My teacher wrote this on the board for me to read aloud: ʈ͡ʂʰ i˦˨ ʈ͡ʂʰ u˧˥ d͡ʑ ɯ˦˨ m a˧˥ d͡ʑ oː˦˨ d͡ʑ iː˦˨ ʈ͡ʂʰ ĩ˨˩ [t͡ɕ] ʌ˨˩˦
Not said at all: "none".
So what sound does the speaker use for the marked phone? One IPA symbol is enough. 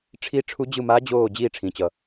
t͡ɕ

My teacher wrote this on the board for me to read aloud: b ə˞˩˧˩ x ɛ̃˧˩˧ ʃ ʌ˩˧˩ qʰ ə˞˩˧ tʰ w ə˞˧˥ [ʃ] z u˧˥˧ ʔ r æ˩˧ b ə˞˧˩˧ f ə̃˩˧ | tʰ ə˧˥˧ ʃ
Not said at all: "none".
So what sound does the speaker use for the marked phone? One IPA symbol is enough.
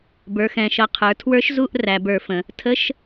ʃ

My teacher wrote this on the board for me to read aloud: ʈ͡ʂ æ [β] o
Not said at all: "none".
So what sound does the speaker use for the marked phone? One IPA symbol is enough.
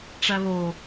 β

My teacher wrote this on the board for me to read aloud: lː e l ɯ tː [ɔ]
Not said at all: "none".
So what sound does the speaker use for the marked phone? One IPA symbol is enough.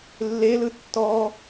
ɔ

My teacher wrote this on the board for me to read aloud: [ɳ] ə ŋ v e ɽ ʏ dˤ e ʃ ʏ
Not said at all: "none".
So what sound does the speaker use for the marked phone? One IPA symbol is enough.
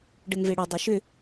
ɖ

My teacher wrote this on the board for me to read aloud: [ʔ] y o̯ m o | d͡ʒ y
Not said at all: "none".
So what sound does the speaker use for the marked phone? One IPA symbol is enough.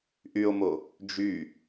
ʔ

